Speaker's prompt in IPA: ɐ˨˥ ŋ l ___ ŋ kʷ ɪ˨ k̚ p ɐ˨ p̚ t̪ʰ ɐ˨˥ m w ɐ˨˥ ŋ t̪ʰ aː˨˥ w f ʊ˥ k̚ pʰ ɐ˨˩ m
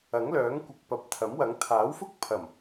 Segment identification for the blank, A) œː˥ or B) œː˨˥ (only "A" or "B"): B